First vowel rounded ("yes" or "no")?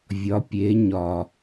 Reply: yes